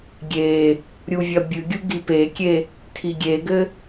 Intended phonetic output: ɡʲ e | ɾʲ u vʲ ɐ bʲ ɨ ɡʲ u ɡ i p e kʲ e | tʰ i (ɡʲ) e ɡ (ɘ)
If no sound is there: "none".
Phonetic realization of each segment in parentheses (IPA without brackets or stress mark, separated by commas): ɡʲ, ɘ